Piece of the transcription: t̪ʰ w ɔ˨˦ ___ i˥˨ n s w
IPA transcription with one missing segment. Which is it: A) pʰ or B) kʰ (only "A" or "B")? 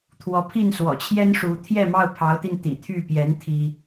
A